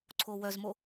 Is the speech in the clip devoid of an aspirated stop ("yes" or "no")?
no